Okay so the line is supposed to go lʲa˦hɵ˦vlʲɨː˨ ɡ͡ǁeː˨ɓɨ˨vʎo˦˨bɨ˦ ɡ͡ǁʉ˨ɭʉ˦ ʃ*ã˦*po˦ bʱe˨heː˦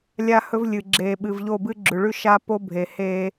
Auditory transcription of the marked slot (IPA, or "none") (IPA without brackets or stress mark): a˦